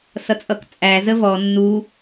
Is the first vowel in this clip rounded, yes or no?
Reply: no